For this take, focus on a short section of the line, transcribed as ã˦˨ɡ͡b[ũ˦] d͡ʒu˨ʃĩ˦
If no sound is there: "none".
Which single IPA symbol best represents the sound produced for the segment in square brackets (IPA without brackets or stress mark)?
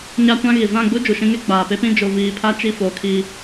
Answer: u˦